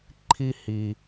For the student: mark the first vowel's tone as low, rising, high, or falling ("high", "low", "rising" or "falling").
high